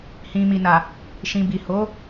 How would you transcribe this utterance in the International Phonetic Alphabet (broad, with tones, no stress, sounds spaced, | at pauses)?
h ĩ˨ m i˨ n a˨ | ʃ ĩ˨ b i˨ h o˨˦